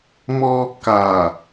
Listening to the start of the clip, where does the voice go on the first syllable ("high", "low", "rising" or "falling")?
high